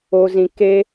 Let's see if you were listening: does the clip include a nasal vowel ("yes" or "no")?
yes